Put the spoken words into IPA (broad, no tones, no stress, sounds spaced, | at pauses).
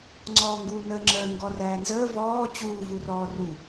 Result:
ŋ͡ǀ ɔː ŋ ɡ uː n əː ŋ͡ǁ əː ŋ ɡ ɔ r æː n z əː v ɔː t͡ɕ uː v u r ɔː r u